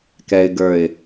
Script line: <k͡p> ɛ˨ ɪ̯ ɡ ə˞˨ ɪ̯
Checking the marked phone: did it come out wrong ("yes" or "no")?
yes